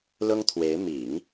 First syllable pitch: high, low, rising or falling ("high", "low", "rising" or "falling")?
high